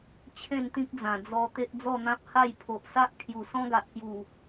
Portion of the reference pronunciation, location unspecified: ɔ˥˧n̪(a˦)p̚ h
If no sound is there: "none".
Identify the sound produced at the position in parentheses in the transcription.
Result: ã˦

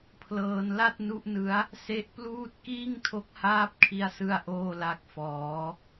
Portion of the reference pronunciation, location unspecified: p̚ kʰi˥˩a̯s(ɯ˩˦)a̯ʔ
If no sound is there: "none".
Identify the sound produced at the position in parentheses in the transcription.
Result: ɯ˥˩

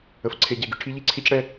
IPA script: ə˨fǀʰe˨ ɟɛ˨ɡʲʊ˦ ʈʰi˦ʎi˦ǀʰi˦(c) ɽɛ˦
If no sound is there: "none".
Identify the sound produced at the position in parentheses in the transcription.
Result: c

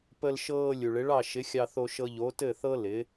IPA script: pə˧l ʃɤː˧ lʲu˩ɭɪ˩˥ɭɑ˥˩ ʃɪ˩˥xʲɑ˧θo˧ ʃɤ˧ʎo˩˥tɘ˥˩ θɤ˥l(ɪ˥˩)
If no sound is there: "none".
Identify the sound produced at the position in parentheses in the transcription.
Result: ɪ˩˥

